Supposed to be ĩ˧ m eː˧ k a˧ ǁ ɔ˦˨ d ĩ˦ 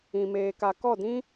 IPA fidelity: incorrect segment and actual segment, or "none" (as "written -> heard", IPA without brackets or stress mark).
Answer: ǁ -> k